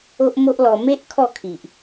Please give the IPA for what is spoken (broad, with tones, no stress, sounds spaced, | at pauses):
o˦ ʔ m o˦ ʔ l ɔ˧ m e˦ ʔ kʰ ɔ˥˧ kʰ i˨ ʔ